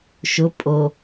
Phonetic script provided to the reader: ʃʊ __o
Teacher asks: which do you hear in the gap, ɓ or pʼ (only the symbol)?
pʼ